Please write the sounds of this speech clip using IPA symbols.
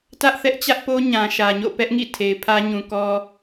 t ä˦ ʔ θ ɛ˦ ʔ t͡ɕ ä˦ ʔ p o˦ ɲ ã˨ ʃ ä˨ ɲ o̰˦˨ p ɛ˦ ʔ ŋ ḭ˦˨ tʰ e˨ ɪ̯ pʰ ä˦ ɲ ũ˨ k ɔ˦

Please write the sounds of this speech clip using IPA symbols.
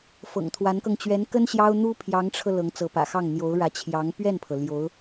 f ɤ̰˨˩ ŋ t̪ʰ w a˧˥ n k ɤ˧ ŋ t͡ɕ ɥ ɛ˧˥ n k ə˥ n ɕ j ɑ˥ ʊ̯ n̪ u˥ pʰ j ɑ˧˥ ŋ ʈ͡ʂʰ ɤ˧ l ɤ˧˥ ŋ t͡s ɤ˧˥ p ä̰˨˩ x ɑ˥˩ ŋ n̪ j o˧˥ ʊ̯ ɻ ä˧˥ t͡ɕʰ j ɑ˧˥ ŋ p ɥ ɛ˥˩ n pʰ ɤ˩ l j o˧˥ ʊ̯

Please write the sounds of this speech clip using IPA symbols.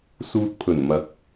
s uː˨ t̚ pʰ ɵ˨˩ n m ɐ˨˥ k̚

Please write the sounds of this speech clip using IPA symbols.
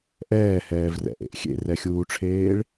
ʔ ɛː h ɛː v r ɛ̰ ʔ ḛ ʔ xʲ ḛ r ɛ xʲ uː ʈ͡ʂʰ eː ɭ

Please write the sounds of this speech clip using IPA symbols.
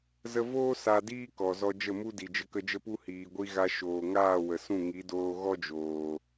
z ə˧ v oː˦ s a˧ d iː˦ k ɔ˨ z ɔ˧ d͡ʒ ə˦˨ m u˦ d i˨ d͡ʒ ə˧ k ə˧ d͡ʒ ə˦ p u˦ h iː˨ ɡʷ i˧ ɣ a˧ ʃ oː˨ ŋ aː˦˨ w ə˨ s ũ˦˨ ŋ i˨˦ d oː˧ ɣ ɔ˦ d͡ʒ oː˨

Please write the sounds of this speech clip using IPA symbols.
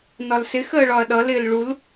n ɒ l s ɪ x əː ɭ ɒ ɐ̯ ɗ ʌ l ɪː l ɭ u l

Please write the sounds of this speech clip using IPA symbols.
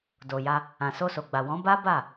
d o˨ j a˧ | ã˨ s o˧ s o˨ ɡ͡b a˨ w ɔ̃˨˦ b a˦ b a˦˨

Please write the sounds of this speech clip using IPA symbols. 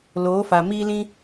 l oː˨˦ f a˨ m iː˦ l ĩ˦

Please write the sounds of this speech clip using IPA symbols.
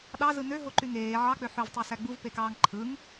ɗ ɑ z ɯ n ø ɦ o ǃ y ŋ eː ʕ ɑ k͡p ø ħ ø v tˤ o s æ ɡ͡b u v p e k ɑː ŋ ǃʰ ɯ ŋ

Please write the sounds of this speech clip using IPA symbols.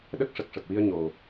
ɗ ə˦˥ k̚ ʂ ə˨˩ k̚ ʂ ə˨˩ k̚ w i˧ ə̯ ɲ o˨˩

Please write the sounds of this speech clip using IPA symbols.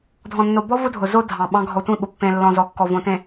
dʱ ɔ̃˨ nː o˨ b ɔ˦ v ʊ˦ dʱ ʊ˨ z o˦ dʱ ɑ̃˨ ɓ ɑ̃˦ ɡʱ ɔ˨ tʷ ĩ˦˨ ɓ ʊ˨ pː ẽ˨ lː ɔ̃˨ z ɔ˨ kː ɔ˨ v õ˨ t ẽ˨

